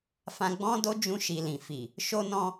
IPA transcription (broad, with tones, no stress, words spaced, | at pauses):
fã˧ɡ͡bɔ̃˦do˦ d͡ʒũ˧ʃi˨lĩ˨fi˨ | ʃo˦nɔ̃˦